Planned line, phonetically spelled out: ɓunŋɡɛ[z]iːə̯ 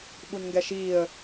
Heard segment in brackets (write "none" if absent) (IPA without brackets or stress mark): ʃ